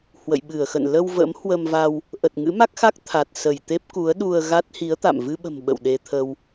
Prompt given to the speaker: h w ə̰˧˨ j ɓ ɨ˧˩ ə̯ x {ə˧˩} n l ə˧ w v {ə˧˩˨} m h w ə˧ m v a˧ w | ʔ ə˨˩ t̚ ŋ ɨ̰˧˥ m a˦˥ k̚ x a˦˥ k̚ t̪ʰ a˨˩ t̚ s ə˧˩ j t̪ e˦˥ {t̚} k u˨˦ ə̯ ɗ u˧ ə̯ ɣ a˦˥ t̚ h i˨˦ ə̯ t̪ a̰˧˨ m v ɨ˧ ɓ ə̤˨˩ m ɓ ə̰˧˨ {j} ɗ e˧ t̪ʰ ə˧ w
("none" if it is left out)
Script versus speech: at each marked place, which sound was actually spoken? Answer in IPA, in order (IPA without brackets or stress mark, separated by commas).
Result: ə̰˧˨, ə̰˧˥, p̚, w